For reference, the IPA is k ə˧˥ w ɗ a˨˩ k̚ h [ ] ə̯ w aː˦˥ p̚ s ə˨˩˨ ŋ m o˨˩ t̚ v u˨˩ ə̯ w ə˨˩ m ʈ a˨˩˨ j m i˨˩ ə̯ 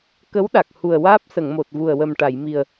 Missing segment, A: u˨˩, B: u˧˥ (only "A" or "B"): A